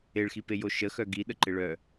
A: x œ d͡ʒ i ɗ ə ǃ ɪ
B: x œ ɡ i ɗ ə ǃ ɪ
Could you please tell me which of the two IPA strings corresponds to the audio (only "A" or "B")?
B